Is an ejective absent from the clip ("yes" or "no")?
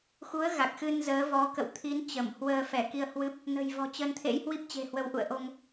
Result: yes